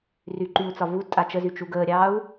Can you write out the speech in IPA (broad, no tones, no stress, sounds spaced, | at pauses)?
r y ǃ y u̯ t͡s ɒ v u d tʼ a t͡ʃ ə z y t͡ʃ u ɡ əː ɾʲ ɑː u̯